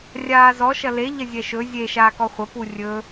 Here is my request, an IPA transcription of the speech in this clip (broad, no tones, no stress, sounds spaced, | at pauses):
rʲ aː z ɔ ʃ ɐ l e ʎ ɐ zʲ ɛ ʃ ɵ zʲ e ʃ aː k ɔ χʷ ɐ p u rʲ ɵ